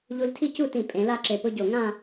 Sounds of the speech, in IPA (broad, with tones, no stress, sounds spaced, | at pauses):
ʎ u˧ l tʰ i˥˧ c u˥˧ t ĩ˧˩ pʼ ẽ˩˧ l a˥˧ ǁ e˧˩ p ʊ˥ ɟ o˧˩ ŋ ã˥˧